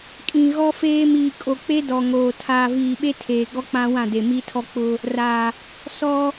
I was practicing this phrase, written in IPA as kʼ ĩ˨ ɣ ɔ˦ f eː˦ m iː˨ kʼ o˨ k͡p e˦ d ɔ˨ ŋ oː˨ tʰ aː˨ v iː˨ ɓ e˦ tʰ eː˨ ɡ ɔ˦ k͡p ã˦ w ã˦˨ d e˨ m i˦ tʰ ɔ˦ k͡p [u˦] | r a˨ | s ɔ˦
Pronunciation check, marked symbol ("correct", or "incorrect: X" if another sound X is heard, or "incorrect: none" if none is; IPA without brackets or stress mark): incorrect: ʊ˦